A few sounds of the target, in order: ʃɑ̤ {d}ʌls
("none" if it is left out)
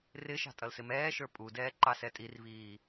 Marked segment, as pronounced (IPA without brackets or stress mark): tʼ